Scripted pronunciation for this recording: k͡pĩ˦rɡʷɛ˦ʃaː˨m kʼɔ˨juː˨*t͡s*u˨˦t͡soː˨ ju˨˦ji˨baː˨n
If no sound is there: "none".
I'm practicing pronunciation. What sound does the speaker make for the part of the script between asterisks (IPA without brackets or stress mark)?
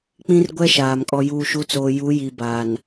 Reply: ʃ